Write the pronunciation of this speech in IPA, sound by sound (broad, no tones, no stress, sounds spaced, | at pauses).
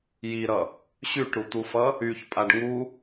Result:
j i ɾ ʌ | ɕ y ʈ ɾ u t̪ u f ʌ | y ç pʼ a ɖ ŋ u